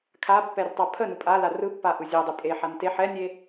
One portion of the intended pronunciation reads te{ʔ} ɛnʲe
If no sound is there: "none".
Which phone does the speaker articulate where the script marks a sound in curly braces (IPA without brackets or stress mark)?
ħ